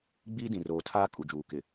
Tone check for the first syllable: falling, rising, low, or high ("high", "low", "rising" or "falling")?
high